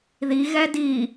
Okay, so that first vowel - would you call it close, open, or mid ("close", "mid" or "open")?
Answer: close